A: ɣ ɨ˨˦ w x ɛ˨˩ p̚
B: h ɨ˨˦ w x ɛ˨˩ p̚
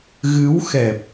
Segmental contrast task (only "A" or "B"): A